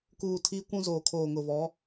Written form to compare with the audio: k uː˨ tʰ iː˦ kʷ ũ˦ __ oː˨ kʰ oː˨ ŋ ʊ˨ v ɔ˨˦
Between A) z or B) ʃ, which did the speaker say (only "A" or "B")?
A